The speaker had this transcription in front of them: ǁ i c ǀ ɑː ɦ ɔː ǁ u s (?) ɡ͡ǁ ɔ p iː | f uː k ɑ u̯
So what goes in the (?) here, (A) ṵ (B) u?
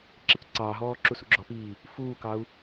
A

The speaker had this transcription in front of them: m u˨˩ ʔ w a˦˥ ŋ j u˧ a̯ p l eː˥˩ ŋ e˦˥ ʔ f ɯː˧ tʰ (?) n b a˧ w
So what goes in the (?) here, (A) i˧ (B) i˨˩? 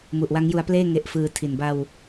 B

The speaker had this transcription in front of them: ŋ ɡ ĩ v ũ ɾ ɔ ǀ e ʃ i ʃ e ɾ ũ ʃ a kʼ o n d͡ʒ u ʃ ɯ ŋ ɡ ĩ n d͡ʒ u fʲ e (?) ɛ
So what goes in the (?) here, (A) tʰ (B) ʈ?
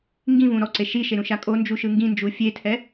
A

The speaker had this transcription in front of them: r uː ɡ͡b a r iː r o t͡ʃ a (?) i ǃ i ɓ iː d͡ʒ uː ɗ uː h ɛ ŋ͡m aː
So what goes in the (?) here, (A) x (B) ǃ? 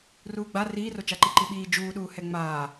B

